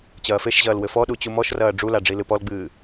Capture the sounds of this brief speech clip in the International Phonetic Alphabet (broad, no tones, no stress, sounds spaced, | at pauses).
t͡ɕ ɐː f e ʃ ʑ ɐː l w ɘ f ɔ ɗ u t͡ɕ u m ɔ ʃ r ɐː ɖ͡ʐ u l a ɖ͡ʐ i l ɨ p ɔ l ɡ͡b ɨː